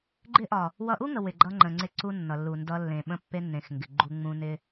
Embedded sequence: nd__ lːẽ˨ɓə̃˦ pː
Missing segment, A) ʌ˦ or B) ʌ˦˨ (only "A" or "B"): A